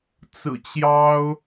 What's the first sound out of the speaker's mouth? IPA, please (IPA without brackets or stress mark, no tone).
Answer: t͡s